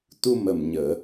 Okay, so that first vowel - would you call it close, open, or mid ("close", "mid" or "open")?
close